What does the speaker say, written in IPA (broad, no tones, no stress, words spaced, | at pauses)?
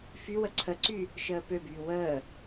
fywə ǀʰəǀy | ʃəːpøbyː wəː